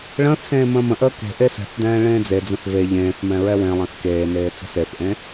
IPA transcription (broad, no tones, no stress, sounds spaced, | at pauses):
ɭ ə̃ː θ s ẽː m ə̃ː m ə̃ ʔ əː k e̤ ʔ e s ɛ̤ θ d ɛ̃ː ɭ ẽː d͡z e d͡z ə̃ θ v e ʎ ẽː θ m ɛ̃ ɹ ɛ w ẽ lˠ ẽ θ k eː n eː t͡s ə̤ s e θ ʔ ẽ